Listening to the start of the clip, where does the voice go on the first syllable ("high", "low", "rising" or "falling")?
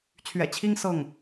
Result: low